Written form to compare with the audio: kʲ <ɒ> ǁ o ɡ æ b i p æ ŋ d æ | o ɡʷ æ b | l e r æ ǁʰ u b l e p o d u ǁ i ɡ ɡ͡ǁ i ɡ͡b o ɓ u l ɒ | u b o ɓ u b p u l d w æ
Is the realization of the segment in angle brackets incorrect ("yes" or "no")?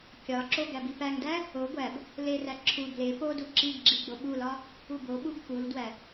no